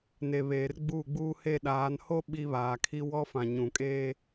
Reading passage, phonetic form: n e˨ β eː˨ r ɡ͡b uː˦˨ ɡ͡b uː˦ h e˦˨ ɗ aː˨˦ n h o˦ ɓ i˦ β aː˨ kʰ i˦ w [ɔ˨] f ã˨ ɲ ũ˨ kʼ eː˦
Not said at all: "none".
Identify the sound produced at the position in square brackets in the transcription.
ɔ˦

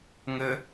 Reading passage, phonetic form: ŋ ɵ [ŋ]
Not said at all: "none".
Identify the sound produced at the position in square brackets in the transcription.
none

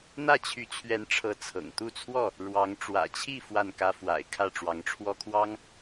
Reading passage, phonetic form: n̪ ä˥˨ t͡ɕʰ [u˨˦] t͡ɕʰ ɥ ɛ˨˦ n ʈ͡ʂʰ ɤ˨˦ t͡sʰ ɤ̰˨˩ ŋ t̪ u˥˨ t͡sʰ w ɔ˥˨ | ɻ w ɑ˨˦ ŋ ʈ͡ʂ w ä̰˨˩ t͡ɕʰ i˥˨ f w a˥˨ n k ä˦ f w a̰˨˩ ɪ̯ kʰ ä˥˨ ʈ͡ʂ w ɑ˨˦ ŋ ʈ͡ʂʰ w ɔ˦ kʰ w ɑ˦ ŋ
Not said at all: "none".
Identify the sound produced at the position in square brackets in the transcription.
y˨˦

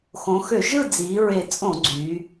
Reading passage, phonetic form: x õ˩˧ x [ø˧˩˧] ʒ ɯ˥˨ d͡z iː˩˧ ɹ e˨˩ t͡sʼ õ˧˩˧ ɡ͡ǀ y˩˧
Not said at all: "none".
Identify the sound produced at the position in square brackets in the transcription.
ø˧˩˧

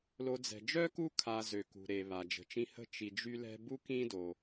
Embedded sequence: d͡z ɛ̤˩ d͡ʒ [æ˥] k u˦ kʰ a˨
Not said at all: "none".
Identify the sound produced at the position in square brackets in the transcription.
œ˥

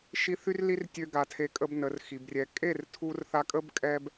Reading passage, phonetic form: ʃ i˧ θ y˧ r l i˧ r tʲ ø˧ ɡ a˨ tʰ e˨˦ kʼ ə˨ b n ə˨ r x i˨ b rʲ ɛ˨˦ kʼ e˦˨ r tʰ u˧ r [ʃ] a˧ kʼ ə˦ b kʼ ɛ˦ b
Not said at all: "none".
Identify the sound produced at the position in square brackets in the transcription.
θ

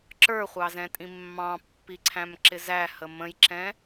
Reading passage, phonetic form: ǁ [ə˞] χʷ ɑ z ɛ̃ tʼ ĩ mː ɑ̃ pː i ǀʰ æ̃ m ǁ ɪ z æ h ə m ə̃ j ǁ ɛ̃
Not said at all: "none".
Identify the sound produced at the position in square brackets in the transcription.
ə˞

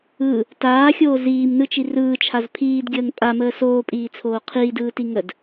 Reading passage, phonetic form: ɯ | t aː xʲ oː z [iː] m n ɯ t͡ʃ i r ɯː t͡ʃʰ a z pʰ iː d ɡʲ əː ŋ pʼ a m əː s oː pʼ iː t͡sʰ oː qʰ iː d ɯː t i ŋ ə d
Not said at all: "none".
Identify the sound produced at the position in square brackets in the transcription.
iː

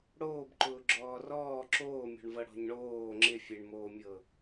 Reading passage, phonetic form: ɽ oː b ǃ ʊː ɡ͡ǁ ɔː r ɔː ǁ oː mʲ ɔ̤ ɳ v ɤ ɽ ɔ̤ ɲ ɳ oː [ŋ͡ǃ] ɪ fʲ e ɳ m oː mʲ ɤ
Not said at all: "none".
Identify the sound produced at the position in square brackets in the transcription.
ŋ͡ǁ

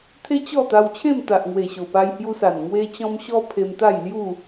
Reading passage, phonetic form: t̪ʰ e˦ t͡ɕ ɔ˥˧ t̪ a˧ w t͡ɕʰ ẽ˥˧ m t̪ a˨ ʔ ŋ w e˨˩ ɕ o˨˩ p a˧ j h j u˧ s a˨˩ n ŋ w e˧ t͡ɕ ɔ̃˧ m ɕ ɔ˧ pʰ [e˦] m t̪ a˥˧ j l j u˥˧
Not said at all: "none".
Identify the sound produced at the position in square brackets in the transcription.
e˧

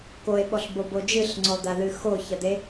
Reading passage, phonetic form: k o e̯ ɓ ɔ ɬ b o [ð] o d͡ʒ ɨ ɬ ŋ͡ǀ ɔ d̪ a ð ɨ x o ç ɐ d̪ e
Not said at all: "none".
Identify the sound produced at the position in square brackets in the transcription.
b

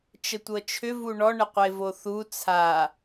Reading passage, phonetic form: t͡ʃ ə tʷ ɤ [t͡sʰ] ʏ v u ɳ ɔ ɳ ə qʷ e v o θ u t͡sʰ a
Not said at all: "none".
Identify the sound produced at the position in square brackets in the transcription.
t͡ʃʰ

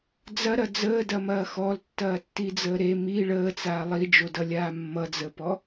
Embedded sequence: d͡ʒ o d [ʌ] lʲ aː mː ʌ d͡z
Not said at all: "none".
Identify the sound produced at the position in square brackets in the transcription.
ʌ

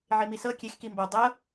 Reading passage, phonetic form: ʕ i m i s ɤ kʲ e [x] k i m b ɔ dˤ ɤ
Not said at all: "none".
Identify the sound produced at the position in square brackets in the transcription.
x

